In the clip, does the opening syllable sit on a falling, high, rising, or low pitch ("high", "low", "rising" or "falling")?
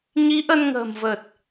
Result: rising